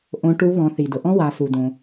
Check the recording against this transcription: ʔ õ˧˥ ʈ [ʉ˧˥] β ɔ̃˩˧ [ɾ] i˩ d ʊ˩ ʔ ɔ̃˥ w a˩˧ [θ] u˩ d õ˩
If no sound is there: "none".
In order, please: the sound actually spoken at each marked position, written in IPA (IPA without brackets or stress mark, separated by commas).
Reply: u˧˥, θ, s